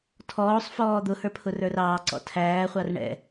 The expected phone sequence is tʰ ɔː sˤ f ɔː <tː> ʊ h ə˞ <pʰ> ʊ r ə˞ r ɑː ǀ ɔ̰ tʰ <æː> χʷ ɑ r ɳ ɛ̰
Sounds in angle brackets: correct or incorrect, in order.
incorrect, correct, correct

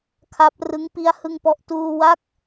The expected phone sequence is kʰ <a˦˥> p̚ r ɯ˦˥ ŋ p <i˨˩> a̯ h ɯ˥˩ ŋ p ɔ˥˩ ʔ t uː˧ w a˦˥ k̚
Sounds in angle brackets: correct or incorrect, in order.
correct, incorrect

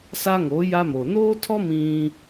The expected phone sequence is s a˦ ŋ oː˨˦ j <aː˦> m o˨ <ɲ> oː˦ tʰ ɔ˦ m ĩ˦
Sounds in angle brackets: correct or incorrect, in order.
incorrect, incorrect

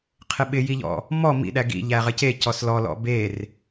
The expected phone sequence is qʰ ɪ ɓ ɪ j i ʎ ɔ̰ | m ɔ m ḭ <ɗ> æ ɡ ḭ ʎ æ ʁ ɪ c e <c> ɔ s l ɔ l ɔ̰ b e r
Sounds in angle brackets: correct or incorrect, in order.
correct, correct

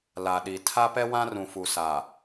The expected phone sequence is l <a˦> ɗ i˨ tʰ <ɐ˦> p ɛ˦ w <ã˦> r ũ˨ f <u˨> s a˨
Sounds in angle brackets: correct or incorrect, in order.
incorrect, incorrect, correct, correct

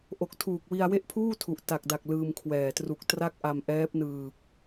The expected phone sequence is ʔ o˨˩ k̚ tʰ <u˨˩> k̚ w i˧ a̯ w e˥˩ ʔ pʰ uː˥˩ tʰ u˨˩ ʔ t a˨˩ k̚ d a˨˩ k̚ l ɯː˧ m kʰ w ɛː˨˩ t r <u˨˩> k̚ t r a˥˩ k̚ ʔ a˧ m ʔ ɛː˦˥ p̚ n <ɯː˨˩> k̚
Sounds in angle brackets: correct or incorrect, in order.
incorrect, correct, correct

